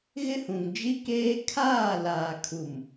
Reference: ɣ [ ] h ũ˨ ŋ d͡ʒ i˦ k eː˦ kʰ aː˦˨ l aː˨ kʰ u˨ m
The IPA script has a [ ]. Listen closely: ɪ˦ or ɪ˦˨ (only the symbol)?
ɪ˦